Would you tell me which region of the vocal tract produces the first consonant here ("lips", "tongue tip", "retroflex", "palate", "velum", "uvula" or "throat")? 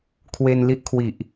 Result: velum